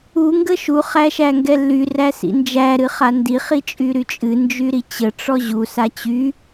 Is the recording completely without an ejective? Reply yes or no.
no